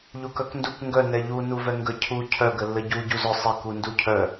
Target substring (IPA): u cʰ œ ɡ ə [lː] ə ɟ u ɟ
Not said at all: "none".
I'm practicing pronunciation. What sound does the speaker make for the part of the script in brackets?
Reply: lː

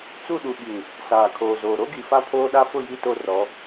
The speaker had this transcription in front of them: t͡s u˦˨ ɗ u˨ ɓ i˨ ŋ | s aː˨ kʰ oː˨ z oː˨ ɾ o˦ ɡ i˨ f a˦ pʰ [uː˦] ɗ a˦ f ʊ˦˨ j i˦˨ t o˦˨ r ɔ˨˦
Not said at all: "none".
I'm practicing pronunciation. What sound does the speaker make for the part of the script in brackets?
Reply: oː˦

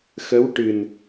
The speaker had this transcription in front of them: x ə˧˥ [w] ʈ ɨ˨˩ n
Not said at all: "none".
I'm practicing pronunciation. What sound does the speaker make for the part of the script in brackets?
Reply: w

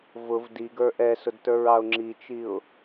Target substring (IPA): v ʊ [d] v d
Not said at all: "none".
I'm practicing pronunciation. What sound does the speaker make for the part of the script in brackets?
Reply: none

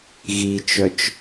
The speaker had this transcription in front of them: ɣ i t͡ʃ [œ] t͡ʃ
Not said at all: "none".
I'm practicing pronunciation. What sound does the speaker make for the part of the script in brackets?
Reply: œ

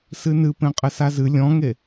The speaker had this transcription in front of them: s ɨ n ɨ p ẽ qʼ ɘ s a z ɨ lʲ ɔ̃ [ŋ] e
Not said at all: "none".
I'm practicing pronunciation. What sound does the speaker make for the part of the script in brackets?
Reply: ŋ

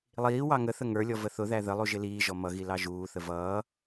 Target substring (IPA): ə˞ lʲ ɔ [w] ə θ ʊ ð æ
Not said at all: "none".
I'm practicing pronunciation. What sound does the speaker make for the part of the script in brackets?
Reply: v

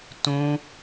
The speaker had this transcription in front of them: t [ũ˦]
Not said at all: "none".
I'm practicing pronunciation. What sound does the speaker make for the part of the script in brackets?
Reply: ũ˦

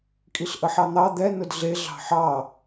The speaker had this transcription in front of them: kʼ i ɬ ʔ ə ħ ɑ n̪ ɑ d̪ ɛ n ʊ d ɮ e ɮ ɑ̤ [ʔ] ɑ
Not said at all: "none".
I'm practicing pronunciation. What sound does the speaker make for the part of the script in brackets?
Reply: ħ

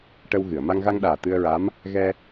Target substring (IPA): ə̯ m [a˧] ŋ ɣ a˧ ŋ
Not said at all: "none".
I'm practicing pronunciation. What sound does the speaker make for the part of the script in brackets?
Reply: a˧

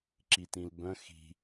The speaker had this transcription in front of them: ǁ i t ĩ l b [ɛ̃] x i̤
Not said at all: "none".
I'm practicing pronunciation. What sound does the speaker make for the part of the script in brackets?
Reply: œ̃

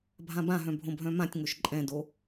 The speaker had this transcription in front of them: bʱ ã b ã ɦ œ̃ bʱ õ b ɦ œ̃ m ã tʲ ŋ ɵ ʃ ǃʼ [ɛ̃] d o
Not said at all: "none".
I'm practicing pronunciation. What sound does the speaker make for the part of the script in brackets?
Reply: ɛ̃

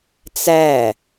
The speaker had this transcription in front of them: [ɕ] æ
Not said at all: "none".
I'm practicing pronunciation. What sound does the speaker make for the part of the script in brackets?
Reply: t͡s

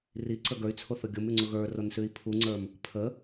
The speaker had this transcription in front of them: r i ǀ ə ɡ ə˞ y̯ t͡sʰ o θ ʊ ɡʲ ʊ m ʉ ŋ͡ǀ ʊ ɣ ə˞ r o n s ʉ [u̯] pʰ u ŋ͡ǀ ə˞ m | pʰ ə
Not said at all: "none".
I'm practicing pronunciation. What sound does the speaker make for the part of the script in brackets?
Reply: i̯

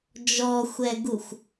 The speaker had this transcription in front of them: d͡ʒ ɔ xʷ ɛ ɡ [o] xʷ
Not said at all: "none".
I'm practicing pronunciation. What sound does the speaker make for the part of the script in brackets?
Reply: u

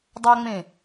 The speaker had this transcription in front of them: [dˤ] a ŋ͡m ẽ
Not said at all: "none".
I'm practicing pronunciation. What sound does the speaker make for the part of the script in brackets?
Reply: dˤ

